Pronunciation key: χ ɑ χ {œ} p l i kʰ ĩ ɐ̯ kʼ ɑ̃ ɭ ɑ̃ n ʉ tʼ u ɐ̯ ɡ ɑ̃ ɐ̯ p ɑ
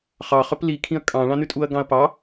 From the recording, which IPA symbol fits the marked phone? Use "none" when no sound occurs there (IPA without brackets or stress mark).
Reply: œ